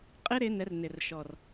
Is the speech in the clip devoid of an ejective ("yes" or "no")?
no